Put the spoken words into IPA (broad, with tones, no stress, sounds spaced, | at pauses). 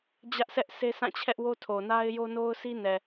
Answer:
d͡ʑ ä˦ ʔ sʰ ɛ˦ ʔ s e˦ sʰ ã˦˨ t͡ɕʰ ɛ˦ ʔ w o˦ tʰ o˨ n a˦ ɪ̯ j o˦ n o˦ ʊ̯ s i˦ n ɛ˨